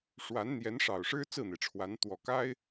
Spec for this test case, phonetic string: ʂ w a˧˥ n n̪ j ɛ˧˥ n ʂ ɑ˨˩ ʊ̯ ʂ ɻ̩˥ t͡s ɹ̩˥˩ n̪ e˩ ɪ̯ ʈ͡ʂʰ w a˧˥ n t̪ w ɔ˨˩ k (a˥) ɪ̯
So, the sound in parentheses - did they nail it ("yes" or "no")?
yes